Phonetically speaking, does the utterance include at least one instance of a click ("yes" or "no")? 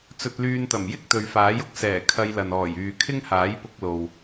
no